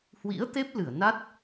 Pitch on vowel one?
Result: rising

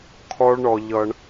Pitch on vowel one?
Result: high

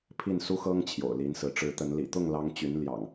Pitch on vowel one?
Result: falling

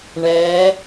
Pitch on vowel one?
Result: rising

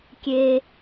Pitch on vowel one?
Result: high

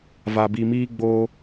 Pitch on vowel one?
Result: low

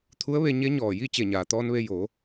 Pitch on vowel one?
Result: rising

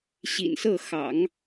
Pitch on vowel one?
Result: low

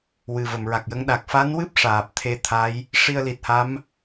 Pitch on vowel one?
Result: low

